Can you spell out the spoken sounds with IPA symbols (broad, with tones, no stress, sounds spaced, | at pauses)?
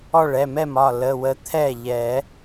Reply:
ɔ˥˩ ɭ ɛ˩˧˩ m ɛ˥˩ m ɒ˥˩ l ə˩˧˩ w ə˨˦ t̪ʰ ɛ˥˩ ʎ ɛ˨˩˦